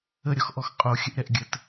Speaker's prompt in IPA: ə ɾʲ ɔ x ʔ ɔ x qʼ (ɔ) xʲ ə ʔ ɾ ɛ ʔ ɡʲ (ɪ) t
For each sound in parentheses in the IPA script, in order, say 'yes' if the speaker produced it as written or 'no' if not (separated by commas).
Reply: no, no